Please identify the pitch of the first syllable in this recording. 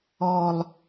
low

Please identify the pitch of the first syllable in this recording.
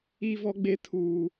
high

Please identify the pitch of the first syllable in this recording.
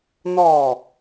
falling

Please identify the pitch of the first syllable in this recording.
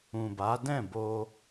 low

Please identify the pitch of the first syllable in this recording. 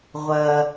high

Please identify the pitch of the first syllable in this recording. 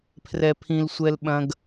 high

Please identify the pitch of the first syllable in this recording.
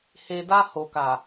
low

